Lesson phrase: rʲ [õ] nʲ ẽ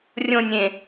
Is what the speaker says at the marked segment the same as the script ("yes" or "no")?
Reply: yes